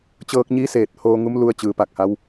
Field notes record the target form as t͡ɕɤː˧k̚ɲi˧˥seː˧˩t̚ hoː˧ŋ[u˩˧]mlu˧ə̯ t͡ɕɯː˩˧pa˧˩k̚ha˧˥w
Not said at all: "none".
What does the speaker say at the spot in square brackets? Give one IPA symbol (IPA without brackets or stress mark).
u˧˥